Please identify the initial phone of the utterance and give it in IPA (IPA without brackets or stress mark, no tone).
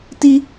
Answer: t